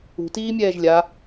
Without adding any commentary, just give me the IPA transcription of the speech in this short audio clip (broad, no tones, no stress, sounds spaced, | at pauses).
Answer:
ṳ t iː mʲ ɛː ʒ lʲ a